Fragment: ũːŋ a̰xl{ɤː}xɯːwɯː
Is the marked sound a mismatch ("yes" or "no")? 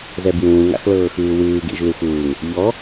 no